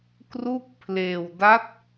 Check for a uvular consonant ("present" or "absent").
absent